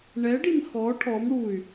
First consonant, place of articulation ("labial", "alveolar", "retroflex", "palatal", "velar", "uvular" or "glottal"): retroflex